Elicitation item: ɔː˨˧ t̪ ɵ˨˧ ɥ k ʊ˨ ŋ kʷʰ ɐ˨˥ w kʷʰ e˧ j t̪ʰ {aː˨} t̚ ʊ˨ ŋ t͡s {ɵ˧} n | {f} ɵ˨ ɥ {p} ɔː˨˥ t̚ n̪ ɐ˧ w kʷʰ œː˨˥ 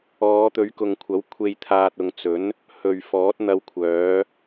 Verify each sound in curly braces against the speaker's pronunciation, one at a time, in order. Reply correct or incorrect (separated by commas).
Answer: correct, incorrect, incorrect, incorrect